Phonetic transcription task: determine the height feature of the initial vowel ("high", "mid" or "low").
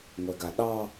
mid